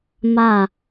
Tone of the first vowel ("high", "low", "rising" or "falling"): falling